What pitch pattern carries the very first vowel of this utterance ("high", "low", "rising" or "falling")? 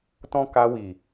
high